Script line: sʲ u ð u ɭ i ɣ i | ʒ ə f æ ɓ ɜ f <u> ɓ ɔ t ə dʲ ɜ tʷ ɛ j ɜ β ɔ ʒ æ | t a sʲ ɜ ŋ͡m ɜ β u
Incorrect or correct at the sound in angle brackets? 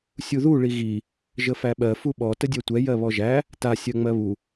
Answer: correct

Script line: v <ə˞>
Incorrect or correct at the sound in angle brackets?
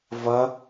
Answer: incorrect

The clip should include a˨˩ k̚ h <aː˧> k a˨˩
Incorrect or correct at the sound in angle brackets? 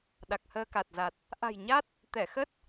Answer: incorrect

